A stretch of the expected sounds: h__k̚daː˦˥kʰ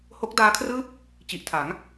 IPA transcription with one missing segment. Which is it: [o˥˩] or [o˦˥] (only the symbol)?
o˦˥